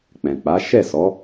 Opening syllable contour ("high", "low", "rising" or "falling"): low